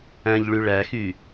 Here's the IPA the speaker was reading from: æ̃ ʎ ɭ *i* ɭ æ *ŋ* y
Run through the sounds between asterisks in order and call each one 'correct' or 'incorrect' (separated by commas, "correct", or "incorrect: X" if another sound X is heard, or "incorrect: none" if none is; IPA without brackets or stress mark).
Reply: incorrect: y, incorrect: x